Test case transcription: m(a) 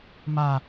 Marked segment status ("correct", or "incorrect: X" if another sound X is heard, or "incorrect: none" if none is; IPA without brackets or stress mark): correct